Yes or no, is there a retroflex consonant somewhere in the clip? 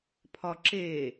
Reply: no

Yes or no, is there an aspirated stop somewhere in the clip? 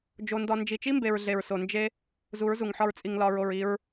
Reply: no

